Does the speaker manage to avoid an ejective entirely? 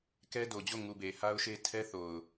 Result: yes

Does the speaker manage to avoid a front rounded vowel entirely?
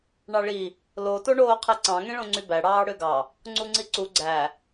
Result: no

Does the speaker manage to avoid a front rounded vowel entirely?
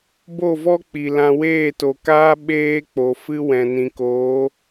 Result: yes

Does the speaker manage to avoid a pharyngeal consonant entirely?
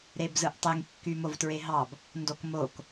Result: yes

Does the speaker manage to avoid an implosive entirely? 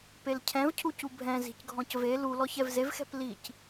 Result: yes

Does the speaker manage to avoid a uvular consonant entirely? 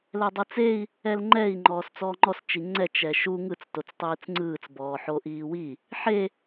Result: yes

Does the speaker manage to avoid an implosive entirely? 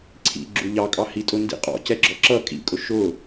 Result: yes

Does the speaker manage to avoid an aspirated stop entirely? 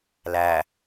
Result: yes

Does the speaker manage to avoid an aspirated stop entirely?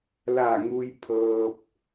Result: no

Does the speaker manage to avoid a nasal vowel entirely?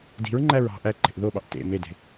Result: yes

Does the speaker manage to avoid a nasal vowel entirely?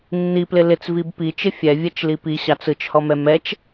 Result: yes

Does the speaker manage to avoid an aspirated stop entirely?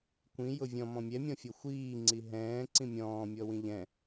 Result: yes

